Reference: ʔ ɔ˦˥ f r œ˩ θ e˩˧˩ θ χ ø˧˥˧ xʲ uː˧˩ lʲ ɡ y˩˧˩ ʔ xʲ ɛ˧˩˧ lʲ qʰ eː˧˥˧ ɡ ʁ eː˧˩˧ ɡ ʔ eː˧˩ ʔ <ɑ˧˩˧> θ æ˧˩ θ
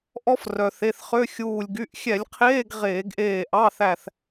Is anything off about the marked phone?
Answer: yes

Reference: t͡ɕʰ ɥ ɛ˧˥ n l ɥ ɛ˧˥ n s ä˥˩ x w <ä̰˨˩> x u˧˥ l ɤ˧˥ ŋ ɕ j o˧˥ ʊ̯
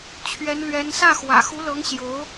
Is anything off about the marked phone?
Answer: no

